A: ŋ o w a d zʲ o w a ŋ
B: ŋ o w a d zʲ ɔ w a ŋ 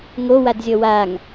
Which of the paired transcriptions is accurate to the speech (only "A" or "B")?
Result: B